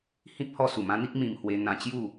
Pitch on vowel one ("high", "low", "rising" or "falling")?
high